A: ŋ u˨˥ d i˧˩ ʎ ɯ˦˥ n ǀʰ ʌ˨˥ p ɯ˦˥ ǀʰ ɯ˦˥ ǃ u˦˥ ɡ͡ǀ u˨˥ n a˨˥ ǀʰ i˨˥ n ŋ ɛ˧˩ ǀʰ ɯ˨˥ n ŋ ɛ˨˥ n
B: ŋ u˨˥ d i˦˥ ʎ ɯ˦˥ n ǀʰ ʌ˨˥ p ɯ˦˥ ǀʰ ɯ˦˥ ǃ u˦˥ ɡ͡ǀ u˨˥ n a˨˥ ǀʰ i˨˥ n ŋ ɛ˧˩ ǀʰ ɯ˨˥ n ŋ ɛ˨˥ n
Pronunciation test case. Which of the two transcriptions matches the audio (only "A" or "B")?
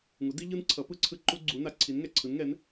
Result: B